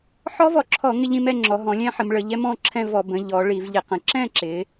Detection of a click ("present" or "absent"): present